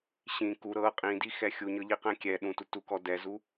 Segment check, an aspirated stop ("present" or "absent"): absent